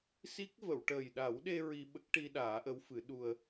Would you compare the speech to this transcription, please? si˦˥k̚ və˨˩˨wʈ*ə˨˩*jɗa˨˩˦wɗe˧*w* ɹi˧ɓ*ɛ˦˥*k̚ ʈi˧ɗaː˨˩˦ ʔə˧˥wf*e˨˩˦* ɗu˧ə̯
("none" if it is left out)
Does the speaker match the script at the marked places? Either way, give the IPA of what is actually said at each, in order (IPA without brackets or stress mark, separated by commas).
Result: əː˨˩, none, ə˦˥, ɨ˨˩˦